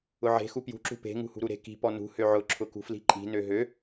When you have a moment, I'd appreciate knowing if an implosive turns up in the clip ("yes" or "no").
no